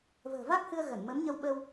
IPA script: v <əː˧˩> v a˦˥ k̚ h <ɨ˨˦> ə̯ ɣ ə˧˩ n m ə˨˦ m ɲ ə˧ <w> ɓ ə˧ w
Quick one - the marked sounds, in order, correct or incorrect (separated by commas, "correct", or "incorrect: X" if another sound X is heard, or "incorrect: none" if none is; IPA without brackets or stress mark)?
incorrect: ə̤ː˨˩, incorrect: ɨ˧, correct